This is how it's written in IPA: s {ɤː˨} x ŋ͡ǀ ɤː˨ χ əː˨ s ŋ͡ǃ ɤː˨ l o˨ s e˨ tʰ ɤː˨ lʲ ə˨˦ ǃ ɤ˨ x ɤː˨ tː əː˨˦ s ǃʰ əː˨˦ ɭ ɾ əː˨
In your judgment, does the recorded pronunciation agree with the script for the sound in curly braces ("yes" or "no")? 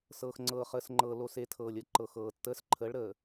yes